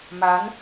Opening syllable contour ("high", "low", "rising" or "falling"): rising